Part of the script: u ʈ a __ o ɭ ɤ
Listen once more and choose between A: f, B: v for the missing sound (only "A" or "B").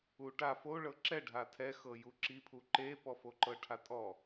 A